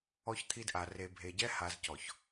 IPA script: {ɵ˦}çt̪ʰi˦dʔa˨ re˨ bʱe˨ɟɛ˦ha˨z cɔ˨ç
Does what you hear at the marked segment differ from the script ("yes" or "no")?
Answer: yes